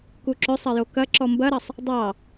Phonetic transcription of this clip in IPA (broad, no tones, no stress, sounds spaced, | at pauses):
k u ǁ ɵ sˤ ɐ j o k ɐ ǁ ɔ m b ɐ ɾ ɐ sˤ | dˤ ɑ